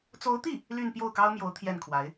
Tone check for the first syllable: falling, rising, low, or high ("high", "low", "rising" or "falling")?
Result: rising